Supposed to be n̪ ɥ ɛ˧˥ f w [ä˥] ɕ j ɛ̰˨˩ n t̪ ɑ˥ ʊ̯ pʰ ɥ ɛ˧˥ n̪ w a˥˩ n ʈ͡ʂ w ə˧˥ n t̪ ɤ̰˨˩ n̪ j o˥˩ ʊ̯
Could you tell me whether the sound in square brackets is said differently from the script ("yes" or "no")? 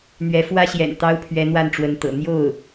no